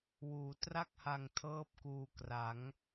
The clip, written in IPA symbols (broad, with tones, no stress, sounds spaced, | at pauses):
w uː˩˦ t r a˥˩ k̚ h a˧ ŋ tʰ ɤː˥˩ p̚ k uː˧ k r a˩˦ ŋ